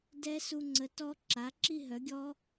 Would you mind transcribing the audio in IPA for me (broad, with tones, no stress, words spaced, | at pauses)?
dɛ˦˥su˧ŋ͡ǀə˩˥ tɔ˦˥ ǁa˩˥ǁi˥˧ɦœ˩˥ɡʲɔ˦˥